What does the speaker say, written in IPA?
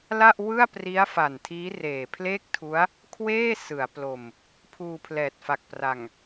l a˥˩ ʔ w ɯ˥˩ a̯ p r i˦˥ a̯ f a˨˩ n tʰ iː˦˥ r eː˨˩ pʰ l eː˥˩ k̚ tʰ u˦˥ a̯ | kʰ w eː˥˩ s ɯ˩˦ a̯ p l o˧ m | pʰ uː˧ pʰ l ɛː˨˩ t̚ f a˨˩ k̚ p r a˨˩ ŋ

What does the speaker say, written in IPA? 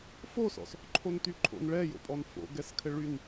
f o s ɔ̰ s | ǃʰ o n t y ǃʰ o̰ n ɭ ɛ j o̰ pʼ ɔ n f o̰ ɡ ɛ s kʰ ɘ ɭ y n

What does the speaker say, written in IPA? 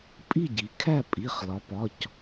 pʼ i˥˨ ɟ i˩˧ kʰ æ˥˨ pʼ i˩˧˩ χ l ɒ˩˧ p ɒ˩˧˩ c

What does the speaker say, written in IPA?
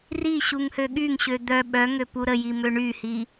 r i ɕ u ŋ h ø ɠ y ŋ ɕ ø d̪ œ ɓ œ ŋ ø p u ɾ ə j i m ø ɳ y h i

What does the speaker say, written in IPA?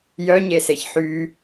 j œ ɲ e s e ç ħ y

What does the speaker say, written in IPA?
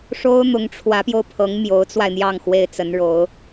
ʂ o˥ ʊ̯ n̪ ʊ˧˥ ŋ ʈ͡ʂʰ w ä˧˥ p j o˧ ʊ̯ pʰ ɤ˧˥ ŋ m j o˧˥ ʊ̯ t͡s w a˧ ɪ̯ n̪ j ɑ˥˩ ŋ x w e˥ ɪ̯ t͡s ə˧˥ n ɻ o˧˥ ʊ̯

